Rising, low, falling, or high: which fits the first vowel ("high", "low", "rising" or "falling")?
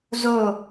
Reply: falling